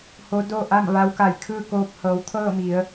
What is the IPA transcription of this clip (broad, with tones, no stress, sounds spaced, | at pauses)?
h o˧˥ d o˥˨ ʔ a˥˨ m ʋ a˧˥ w k a˧˩ j kʰ ɯː˥˨ k oː˧ p̚ h ɤː˩˧ w t̪ʰ ɤː˥˨ m i˩˧ ə̯